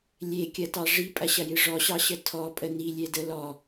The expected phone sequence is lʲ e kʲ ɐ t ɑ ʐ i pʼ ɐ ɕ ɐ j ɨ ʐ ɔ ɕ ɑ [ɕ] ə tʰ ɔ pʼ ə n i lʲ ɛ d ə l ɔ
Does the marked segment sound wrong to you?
no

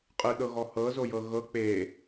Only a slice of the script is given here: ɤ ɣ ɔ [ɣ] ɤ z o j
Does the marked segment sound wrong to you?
yes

